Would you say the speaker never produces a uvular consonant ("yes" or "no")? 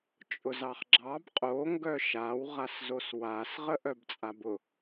no